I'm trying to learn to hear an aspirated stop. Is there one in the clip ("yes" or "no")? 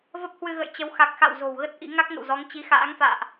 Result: no